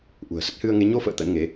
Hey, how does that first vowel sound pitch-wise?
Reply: low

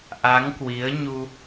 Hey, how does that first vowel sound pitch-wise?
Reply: rising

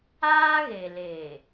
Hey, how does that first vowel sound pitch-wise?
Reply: high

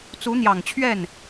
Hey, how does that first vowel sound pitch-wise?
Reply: rising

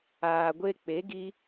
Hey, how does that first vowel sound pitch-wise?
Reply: low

